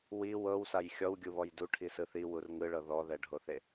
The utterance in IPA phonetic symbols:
w i w ɤ w s a j xʲ ɔ w ɡʲ u β ɔ j d u ʈʰ i s ɯ θ i w u r ŋ ɯ ɭ ɤ ð ɔ ð ɛ ɖʱ o θ e

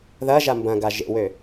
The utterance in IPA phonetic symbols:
ð ɐ ʒ a m b ɐ̃ ɡ a ʒ ḛ w ø

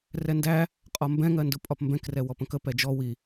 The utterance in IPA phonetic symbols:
r ɛ n d æ | qʼ ɒ m b ɛ̃ ŋ ɜ n d ʊ pʼ ɒ p m b ɛ̃ k r ɛ w ɔ p ə̃ k ə p ɛ d͡ʒ ɔ w i

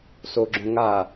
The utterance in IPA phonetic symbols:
s o ɡ͡ǁ õ ŋ a

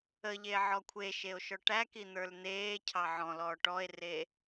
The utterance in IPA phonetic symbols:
ə ʎ e ʕ ɔ kʷʰ e ʃ e o̯ ʃ ɔ ʈ æ k i n̪ ə˞ l n̪ eː cʰ ɑ ʕ ɔ̃ l ɔː ʈ ɔ e̯ r e

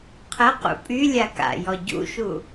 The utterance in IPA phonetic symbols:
qʰ ə q ṵ pʼ y lʲ a k a̰ j ɔ ɟ ṵ ʃ u

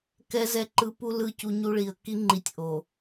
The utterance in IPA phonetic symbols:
k ɛ˦ z ɛ˦˨ ǃ ɯ˦ p u˦ l ɯ˦˨ c u˦ ɲ u˦ ɭ i˨ ə̯ k i˦ ŋ͡ǃ i˨ tʲ ʔ o˨

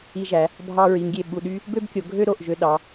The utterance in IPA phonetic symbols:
i˧ ʒ æ˩˧ | bʱ ɑ˧ ɹ i˩˧ ŋ ɡʲ e˧˩ ɓ u˧˩ ɗ y˥ | b ø˥ b kʲ o˩˧ ɡʱ ø˥ ɾ o˧˩ ʔ ʒ ø˧ ɗ ɑ˩˧

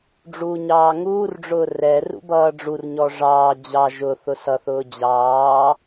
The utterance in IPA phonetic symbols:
ɖ͡ʐ uː ɲ ɑː ŋ uː r ɖ͡ʐ ʊː r ɛ r ṵ b ʌː ɖ͡ʐ u r ɲ ɔ ʐ ɑː d͡ʑ ɑ ʒ ʊ θ ʊ s ʌ θ ʊː d͡ʑ ɑː

